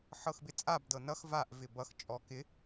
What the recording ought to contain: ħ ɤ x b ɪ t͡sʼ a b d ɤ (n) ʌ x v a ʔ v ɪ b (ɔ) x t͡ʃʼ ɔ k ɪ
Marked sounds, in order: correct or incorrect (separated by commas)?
correct, incorrect